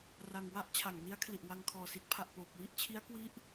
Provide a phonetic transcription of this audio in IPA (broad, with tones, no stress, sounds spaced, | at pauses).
r a˧ ŋ w a˥˩ ʔ t͡ɕʰ a˩˦ ŋ n i˦˥ a̯ kʰ l i˨˩ ʔ w a˧ ŋ kʰ ɔː˨˩ s i˦˥ t̚ pʰ a˨˩ ʔ p oː˨˩ p̚ w i˦˥ ʔ t͡ɕʰ i˦˥ a̯ k w i˦˥ ʔ